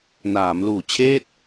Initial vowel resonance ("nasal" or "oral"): oral